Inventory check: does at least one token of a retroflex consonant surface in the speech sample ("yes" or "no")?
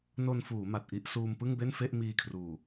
no